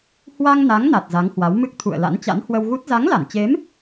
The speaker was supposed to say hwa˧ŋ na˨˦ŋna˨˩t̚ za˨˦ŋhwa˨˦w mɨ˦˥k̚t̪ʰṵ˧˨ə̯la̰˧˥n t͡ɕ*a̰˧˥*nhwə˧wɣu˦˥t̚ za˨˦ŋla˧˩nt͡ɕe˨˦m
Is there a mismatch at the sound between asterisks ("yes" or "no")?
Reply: no